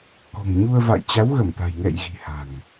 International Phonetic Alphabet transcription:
k ɔ̤˨˩ ŋ ɲ u˧ ə̯ v a̰˧˨ j t͡ɕ a˨˦ w ɣ ə˧˩ m t̪ a̤˨˩ j ŋ ɛ̰˧˨ j ɣ i̤˨˩ h a̤˨˩ ŋ

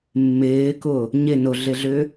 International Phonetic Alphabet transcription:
mː ɪː k ʊ | ɲ ɪ n ʊ ɮ ɪ ɮ ʏ

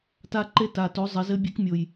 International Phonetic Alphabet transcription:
t a˧ ǃ e˧ t a˩ t o˩˧ zˤ ɘ˩˧ z ɘ˧˥ bʲ e˧˥ k mʲ o˩ j

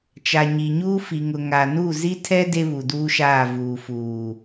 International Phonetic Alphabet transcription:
t͡ʃ a˨ ɲ i˨ ɲ uː˦ f i˨ ŋ ʊ˨ ŋ a˨ n u˦˨ z i˦ tʰ ɛ˦ d e˦ β u˨ d uː˦ ʃ aː˦˨ v uː˨ f uː˨

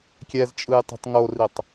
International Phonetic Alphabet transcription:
kʲ ɛ z t͡ʃʼ ɯ j tˤ e̤ tˤ ŋ o r i tˤ

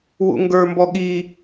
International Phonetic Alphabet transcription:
w ṵ ŋ ɡ ə˞ m b ɔ ɠ i

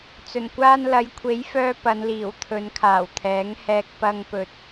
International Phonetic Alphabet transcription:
t͡s ɵ˨˩ n kʷ aː˧ n l ɐ˨˧ j kʷʰ e˨˥ j f œː˧ p ɐ˨˧ n l iː˨˩ w t̪ʰ ɵ˨˧ n kʰ aː˨˩ w t̪ʰ ɛː˨˥ ŋ h ɛː˧ k̚ p ɐ˧ ŋ p ɵ˨ t̚

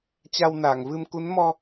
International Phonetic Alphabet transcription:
t͡ɕ a˧ w n aː˧˩ ŋ v ɨ˧ m k u˨˦ n m ɔ˧

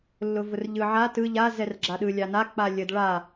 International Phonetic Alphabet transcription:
lː ʊ v ʊ r ʎ ɯ ʕ a t ɯ ʎ a z ɛ r ɡ͡ǁ a ɗ ɯ lʲ a n a k͡p a lʲ ə d ɭ a

